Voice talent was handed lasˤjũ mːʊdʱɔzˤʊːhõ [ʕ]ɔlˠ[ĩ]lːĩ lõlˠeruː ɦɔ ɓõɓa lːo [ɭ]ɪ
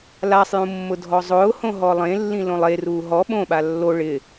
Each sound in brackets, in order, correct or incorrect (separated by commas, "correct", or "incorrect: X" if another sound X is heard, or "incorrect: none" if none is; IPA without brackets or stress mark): incorrect: ɦ, incorrect: ẽ, correct